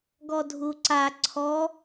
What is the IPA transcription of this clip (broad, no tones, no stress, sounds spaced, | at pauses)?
ɡ ɔ dʱ u ǀ a ǀʰ ɔ